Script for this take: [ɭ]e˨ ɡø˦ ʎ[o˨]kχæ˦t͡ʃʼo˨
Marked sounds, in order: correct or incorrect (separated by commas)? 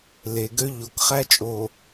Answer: incorrect, correct